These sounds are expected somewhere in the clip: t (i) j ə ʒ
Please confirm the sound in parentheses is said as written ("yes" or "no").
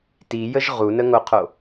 yes